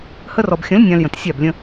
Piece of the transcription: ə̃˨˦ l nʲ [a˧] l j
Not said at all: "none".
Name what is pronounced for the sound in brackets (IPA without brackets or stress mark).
ã˧